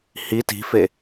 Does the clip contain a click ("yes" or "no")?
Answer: no